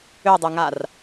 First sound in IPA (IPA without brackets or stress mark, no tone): ø